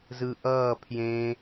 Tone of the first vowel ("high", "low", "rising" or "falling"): low